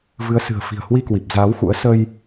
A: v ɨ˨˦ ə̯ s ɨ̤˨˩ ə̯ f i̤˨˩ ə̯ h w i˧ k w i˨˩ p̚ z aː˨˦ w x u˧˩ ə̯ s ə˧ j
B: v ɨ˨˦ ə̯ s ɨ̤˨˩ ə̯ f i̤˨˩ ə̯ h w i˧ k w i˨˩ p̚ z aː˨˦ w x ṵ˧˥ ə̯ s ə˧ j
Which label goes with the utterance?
B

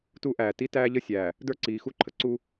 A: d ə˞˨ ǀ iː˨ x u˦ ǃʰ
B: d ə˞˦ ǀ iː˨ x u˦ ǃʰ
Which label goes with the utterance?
B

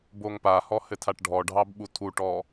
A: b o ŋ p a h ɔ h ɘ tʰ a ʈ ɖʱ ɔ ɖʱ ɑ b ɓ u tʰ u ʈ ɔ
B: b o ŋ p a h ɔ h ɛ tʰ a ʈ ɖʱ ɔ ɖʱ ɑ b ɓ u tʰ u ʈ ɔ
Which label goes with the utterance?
A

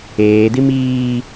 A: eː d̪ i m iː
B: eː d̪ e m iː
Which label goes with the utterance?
A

